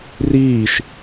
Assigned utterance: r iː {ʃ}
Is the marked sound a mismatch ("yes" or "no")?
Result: no